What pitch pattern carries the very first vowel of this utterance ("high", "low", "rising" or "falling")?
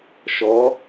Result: rising